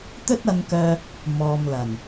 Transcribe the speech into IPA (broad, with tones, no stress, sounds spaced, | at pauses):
t̪ ɵ˥ t̚ ɐ˧ n k œː˧ | m ɔː˨ m l ɐ˨˩ n